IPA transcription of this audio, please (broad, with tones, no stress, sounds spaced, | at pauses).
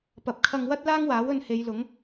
p ɐ˨ p̚ kʰ ɐ˧ ŋ w ɐ˥ t̚ l aː˥ ŋ w aː˨˥ w ɵ˧ n h e˨˧ j l ʊ˨˥ ŋ